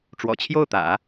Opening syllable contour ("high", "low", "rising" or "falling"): low